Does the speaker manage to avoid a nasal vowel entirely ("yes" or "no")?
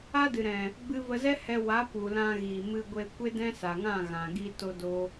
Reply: no